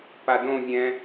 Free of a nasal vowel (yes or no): no